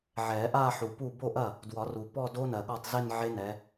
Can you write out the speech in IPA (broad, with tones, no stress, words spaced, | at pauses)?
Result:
ʕɛ˨˩˦ʔa˥˧ħu˨pu˥˩ bo˥˩ʔɐ˥˩ | dwɒ˨˩˦ru˨ pɔ˥˧ do˦˥nɜ˨ɠɔ˥˩tˤ ze˥˧nʕe˦˥nɛ˨˦